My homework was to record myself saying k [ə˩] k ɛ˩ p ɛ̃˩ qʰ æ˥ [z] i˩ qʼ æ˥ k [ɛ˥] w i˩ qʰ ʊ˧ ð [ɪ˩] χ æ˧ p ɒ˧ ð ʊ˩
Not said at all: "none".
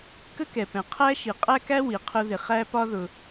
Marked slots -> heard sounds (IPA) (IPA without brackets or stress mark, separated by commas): ə˥, ʃ, æ˥, ɪ˩